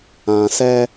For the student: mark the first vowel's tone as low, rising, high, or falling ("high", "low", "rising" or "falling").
low